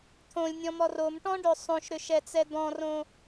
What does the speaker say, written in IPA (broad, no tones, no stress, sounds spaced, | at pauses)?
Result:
t̪ʰ õ lʲ nʲ ɔ̃ m ɔ r o m ʈ ɔ̃ ɖ ø sˤ õ ʃ ɾ ʏ ʃ ɛ t͡s ɛ d̪ ɔ̃ r õ